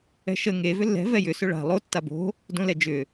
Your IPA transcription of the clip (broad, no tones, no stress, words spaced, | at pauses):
ɛ̤ʃə ŋe vʏlːɛ̤ vɛjʏ sʏɭa̤ lˠo tːabo̤ | dõlɛd͡ʒʏ